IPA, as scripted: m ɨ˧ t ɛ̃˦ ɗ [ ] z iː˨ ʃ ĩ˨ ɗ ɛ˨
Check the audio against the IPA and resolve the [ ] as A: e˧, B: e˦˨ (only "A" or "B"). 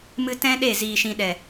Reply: B